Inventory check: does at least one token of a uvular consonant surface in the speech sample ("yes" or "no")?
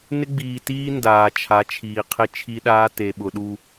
yes